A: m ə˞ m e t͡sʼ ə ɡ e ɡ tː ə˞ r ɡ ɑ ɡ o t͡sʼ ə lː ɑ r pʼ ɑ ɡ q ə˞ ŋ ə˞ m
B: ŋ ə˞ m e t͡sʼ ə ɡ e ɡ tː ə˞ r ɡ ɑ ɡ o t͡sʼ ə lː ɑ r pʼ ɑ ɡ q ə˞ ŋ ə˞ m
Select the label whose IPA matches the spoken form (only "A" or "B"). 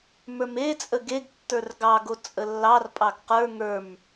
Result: A